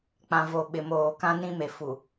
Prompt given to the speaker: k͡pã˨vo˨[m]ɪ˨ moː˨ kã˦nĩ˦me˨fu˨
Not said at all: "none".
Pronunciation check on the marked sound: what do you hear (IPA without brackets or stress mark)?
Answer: ɓ